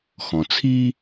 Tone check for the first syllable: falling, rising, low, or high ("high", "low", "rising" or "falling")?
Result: low